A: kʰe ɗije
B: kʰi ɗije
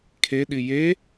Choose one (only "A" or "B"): A